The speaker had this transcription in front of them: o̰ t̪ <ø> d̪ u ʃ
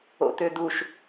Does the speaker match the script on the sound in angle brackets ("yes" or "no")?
yes